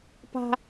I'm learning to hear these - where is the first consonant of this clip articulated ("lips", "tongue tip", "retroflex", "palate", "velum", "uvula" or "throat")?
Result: lips